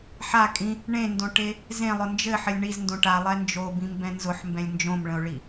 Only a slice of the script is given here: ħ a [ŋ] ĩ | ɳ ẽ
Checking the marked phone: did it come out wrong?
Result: yes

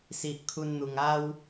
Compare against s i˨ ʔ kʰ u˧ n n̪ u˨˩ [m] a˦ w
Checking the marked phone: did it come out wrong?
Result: yes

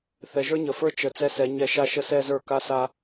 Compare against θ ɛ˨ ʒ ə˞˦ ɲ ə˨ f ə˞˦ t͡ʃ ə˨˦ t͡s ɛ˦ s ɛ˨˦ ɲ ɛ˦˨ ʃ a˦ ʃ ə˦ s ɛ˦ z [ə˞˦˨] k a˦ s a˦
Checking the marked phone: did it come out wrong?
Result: no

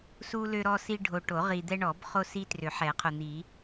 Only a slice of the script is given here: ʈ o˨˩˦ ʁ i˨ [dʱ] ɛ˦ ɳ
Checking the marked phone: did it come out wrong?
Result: yes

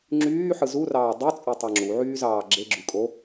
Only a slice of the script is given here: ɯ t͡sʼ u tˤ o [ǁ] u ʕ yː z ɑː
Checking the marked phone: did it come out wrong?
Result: yes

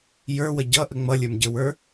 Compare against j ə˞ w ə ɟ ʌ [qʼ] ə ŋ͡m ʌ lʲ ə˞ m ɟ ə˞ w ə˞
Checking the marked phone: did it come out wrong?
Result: yes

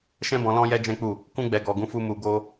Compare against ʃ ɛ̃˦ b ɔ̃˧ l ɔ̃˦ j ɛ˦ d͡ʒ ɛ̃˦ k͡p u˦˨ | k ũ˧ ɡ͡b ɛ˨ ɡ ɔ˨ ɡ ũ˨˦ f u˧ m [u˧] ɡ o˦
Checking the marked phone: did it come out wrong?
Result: no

